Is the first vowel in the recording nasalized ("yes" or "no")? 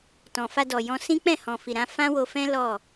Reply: yes